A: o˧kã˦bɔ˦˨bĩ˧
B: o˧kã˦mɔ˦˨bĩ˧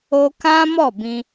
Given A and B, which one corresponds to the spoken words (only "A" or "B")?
B